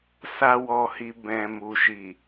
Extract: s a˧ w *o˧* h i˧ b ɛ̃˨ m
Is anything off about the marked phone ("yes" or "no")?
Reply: yes